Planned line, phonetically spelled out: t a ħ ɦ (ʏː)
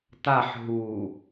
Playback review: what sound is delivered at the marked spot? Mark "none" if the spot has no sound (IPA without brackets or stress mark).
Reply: uː